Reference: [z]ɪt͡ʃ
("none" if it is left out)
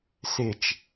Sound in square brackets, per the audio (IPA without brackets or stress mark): s